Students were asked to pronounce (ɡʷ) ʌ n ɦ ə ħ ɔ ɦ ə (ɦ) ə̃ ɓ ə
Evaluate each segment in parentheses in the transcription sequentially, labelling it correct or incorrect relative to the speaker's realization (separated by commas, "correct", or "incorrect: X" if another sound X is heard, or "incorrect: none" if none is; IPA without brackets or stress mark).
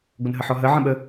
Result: correct, incorrect: ʕ